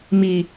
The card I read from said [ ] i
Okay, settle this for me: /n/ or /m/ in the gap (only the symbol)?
m